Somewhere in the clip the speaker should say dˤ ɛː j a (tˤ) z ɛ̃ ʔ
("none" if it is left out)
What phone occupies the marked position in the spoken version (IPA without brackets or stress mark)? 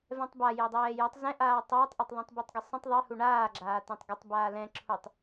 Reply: tˤ